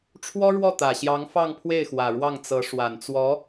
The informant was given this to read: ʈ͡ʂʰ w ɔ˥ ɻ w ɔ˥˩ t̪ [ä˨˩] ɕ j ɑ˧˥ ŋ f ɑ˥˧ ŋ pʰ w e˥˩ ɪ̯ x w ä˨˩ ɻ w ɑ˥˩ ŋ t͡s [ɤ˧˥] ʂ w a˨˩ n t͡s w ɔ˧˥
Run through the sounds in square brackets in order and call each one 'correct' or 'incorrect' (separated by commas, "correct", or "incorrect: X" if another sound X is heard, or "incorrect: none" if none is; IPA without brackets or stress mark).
correct, correct